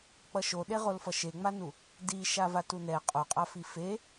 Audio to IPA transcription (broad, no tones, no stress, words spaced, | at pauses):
k͡pʌʃoɗeʁol fʌʃeŋ͡manu | di ʃavatunɛ qʼoqʼafi fe